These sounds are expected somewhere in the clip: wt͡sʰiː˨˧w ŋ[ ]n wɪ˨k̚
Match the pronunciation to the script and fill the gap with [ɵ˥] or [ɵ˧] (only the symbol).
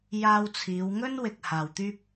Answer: ɵ˥